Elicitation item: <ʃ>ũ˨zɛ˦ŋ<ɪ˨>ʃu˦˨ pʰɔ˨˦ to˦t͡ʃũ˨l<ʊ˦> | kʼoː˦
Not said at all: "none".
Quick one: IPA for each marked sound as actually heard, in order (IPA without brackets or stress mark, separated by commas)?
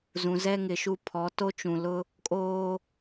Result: z, ɪ˨, ʊ˦